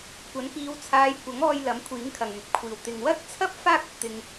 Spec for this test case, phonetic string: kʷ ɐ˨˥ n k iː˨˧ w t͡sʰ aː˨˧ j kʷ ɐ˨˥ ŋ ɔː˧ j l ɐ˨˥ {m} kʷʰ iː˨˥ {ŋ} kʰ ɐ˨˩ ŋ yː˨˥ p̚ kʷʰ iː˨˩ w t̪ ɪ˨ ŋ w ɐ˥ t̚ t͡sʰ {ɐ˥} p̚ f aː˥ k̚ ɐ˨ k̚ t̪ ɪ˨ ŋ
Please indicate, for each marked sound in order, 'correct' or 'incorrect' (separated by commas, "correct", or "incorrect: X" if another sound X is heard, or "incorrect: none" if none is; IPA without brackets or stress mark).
correct, correct, correct